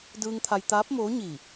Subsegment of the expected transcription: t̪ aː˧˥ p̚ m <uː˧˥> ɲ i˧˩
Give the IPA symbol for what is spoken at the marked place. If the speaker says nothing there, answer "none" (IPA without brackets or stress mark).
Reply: oː˧˥